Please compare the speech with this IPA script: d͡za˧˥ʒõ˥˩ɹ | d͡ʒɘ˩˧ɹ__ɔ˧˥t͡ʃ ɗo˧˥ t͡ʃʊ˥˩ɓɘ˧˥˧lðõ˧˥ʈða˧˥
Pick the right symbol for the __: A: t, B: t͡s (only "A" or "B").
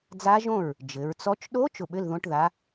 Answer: B